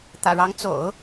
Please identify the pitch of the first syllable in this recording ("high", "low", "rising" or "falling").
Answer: low